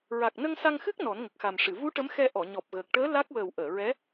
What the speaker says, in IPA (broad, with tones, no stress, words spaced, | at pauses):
ɹa˨˩k̚nə˧ŋ sa˧ŋxɨ˦˥k̚ nɔ˨˩˦nŋə˨˩k̚xa˨˩mʂɨ˨˩˨ vu˧˥ ʈə˧˥mxɛ˧ ʔɔ˨˩˨ɲɔ˨˩p̚ɣəː˨˩k̚ʈəː˧˥ la˦˥k̚ wəː˨˩wʔəː˨˩˨ ɹɛ˧˥